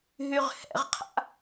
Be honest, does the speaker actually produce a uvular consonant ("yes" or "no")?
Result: yes